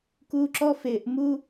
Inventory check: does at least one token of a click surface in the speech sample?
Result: yes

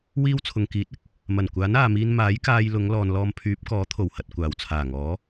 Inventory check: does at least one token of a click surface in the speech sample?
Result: no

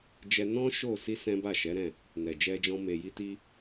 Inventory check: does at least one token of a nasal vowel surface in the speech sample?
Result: yes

